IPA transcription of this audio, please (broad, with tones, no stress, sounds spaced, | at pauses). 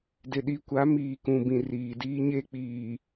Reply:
d ɪ˨ ɗ i˨ kʷ a˨˦ m iː˨ k ũ˨ b ĩ˨ r iː˨ d iː˦ ɲ e˦ k͡p iː˨